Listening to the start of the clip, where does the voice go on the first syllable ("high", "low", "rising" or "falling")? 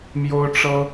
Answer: high